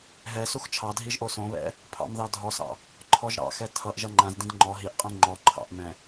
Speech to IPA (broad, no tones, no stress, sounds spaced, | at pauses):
ɦ ɛ s u x t͡ʃʰ ɑ dʱ i ʒ ʔ o s õ β ɛ̰ | pʰ ɑ̰ m ð ɑ dʱ ɔ s ɑ̰ | ǃʰ ɔ ʒ ɾ ɑ̰ x ɛ tʰ ʌ ʔ ʒ ʌ ŋ͡ǃ ã z d ĩ d ŋ͡ǃ ɔ ɦ i ʔ qʼ ĩ ŋ͡ǃ ɔ ǃʰ ɑ̰ ʔ m ɛ̃